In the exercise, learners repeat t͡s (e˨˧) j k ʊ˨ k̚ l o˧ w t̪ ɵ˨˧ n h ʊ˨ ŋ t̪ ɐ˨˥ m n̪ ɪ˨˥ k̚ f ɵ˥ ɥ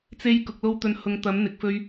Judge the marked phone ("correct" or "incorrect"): incorrect